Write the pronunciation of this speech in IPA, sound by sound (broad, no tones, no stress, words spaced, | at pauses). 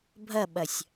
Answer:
bʱɐɓɐsʲ